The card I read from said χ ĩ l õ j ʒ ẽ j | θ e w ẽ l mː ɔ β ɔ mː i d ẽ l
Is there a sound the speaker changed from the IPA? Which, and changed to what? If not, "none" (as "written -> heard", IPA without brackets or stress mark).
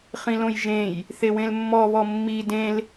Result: none